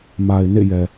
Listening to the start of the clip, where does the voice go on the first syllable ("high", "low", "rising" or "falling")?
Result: low